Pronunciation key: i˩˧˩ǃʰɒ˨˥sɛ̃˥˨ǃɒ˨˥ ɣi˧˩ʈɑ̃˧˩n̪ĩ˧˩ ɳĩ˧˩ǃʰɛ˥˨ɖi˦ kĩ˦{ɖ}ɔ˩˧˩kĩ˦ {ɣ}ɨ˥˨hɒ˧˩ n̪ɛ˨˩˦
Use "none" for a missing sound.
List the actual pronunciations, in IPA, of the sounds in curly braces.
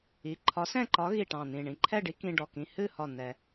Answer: ɖ, h

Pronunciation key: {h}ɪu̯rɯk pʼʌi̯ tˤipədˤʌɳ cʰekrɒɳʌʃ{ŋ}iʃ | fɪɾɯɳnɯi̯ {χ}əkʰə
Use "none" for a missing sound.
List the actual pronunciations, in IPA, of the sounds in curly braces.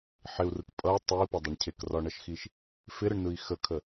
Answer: ħ, x, x

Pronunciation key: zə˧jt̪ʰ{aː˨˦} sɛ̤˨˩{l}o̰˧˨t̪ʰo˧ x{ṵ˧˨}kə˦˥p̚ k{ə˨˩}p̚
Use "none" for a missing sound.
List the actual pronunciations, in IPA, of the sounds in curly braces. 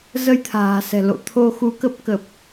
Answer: a̤ː˨˩, l, u˨˦, ə˨˩

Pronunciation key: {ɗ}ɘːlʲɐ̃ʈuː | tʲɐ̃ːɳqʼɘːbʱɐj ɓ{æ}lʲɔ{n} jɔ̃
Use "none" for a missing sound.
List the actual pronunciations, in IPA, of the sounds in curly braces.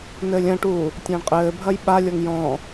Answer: n, a, ŋ

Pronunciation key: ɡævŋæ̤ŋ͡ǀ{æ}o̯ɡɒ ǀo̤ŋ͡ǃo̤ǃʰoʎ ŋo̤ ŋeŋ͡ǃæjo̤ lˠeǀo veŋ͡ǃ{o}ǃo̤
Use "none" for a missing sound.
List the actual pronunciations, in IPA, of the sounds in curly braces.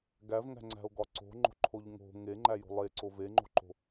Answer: æ̤, o̤

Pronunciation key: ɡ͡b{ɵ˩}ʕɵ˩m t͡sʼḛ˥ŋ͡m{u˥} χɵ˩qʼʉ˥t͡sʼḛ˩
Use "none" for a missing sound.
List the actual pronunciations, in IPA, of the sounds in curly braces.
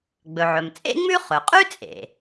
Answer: ɵ˩, ʉ˥

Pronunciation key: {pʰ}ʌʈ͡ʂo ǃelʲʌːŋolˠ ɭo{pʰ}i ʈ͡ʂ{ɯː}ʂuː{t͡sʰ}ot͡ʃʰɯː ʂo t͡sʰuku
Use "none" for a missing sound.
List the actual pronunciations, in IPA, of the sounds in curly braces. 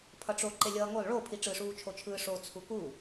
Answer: pʰ, pʰ, ɯ, t͡ʃʰ

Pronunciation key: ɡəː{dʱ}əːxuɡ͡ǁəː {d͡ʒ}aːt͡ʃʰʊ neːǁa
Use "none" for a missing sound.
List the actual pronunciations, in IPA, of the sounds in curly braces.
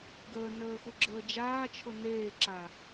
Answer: n, d͡ʒ

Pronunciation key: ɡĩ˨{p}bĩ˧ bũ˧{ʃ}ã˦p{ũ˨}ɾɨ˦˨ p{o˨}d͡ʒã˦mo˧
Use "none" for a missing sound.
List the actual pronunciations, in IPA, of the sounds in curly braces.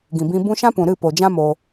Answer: none, ʃ, ũ˨, o˨

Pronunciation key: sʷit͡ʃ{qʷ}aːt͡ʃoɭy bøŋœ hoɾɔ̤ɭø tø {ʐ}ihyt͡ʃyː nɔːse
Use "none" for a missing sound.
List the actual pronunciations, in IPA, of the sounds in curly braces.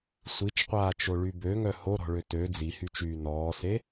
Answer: qʷ, d͡z

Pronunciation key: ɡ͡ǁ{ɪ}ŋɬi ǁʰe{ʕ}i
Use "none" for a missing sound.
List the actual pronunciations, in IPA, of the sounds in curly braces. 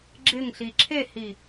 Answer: ɪ, h

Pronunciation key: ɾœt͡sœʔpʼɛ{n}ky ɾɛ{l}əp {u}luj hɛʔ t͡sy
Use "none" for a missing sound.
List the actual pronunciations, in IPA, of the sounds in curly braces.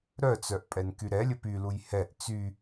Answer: n, lʲ, y

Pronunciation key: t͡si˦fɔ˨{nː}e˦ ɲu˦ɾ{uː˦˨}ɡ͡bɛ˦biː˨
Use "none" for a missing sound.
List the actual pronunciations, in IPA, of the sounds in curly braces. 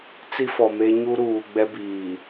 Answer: m, uː˨

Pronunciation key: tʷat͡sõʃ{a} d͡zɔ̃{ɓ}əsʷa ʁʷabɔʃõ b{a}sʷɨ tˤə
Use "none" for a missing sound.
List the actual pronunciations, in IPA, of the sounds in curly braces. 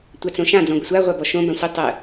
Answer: ã, ɡʷ, ã

